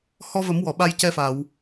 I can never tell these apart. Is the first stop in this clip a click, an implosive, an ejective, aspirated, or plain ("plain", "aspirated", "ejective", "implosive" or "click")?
implosive